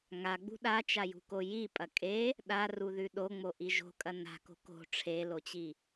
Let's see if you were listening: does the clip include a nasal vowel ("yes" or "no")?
no